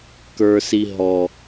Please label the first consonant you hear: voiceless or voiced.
voiceless